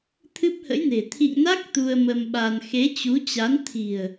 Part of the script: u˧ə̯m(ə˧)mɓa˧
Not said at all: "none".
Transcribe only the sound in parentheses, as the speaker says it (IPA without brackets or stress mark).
ə˧